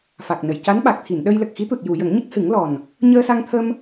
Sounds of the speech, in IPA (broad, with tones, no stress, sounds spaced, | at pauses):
f a˨˩ k̚ n ə˨˩˨ j c a˧˥ n ɓ a˨˩ k̚ t̪ʰ i˨˩˨ n ɗ ə˧ j l ə˨˩ k̚ x i˧˥ t̪ u˨˩ t̚ j u˨˩˨ j ə˨˩˦ ŋ ɲ ə˦˥ k̚ h ɨ˨˩˦ ŋ l ɔ˨˩ n | ɲ əː˧ s a˧ ŋ t̪ʰ ə˧ m